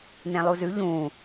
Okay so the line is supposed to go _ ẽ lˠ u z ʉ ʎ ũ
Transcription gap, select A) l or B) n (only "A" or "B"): B